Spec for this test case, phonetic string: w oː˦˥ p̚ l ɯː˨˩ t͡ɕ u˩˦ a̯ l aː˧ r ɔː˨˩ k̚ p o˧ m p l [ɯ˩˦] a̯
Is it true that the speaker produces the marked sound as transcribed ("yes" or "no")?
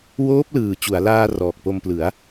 yes